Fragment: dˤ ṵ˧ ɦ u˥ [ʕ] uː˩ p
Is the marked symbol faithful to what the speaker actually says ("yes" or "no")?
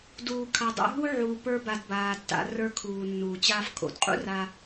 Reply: yes